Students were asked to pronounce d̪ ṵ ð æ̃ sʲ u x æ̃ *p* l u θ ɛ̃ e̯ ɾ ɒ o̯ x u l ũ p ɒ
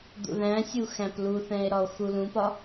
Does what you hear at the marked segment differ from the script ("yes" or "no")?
no